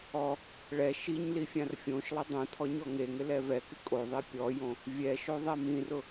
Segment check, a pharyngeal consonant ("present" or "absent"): absent